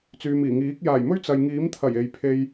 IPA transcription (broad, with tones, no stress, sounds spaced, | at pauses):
t͡s yː˨ m iː˨˩ ŋ iː˨˥ k̚ j aː˨˩ j m ɵ˥ ɥ t͡s ɐ˨ j ŋ iː˨˥ m t̪ʰ ɐ˨˩ j e˨ j pʰ e˧ j